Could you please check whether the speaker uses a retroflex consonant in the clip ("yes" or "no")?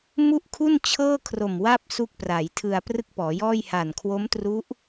no